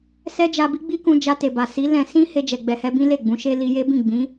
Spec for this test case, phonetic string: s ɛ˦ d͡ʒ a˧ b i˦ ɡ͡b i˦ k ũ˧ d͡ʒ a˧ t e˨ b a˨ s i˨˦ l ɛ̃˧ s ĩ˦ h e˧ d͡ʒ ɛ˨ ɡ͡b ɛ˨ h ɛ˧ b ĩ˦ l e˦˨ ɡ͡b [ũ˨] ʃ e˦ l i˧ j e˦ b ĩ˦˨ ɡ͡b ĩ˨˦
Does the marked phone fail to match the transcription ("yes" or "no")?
yes